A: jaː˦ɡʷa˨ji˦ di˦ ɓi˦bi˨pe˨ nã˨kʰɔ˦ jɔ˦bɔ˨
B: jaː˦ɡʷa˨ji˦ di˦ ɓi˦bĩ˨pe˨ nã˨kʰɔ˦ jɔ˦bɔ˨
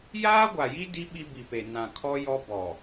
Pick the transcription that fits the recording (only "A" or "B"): A